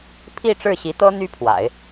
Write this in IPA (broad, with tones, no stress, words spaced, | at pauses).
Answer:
pʰi˥˧ ʈ͡ʂɻ̩˥˩ɕi˧˥ t̪ɤ˥ n̪y˥pʰwa̰˨˩˦ɪ̯